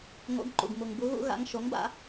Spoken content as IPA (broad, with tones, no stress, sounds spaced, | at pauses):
ŋ o̰˨˥ ɡ ǃ ṵ˩ ɡ m u˩ ŋ b u˨˥ ɣ ṵ˨˥ ɣ a̰˨˥ ŋ ʃ o˨˥ ŋ b a̰˨˥